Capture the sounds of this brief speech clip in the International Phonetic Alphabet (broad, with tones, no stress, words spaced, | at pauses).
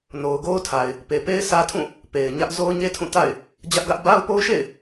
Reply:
no˨ʊ̯ɡo˦ʊ̯tʰa˨ɪ̯ | pe˨pe˦ɪ̯sä˦tʰũ˦˨ | pe˨ɪ̯ɲä˦ʔ zo˦ʊ̯ɲe˦tʰũ˦˨ ta̰˦˨ɪ̯ | d͡ʑä˦ʔɡä˦ʔ ba˦ʊ̯po˦ʊ̯ʃḛ˦˨ɪ̯